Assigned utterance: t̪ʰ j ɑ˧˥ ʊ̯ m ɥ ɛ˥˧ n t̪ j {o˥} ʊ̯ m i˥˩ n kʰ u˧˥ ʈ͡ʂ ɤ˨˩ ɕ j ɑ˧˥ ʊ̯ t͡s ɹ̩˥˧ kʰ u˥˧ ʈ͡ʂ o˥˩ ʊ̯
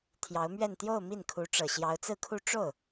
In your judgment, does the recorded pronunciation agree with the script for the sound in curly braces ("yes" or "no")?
no